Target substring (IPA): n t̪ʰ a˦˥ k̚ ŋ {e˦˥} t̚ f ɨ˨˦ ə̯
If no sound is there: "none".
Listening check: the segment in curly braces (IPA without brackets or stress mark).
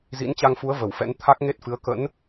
e˦˥